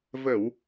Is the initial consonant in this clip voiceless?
no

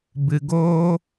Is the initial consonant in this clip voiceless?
no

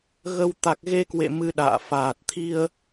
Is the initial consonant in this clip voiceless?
no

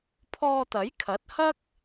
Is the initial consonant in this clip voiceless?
yes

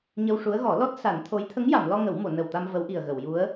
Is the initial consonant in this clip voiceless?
no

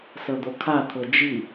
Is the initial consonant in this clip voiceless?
yes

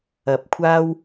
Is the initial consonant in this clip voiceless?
yes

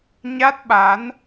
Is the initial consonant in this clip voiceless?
no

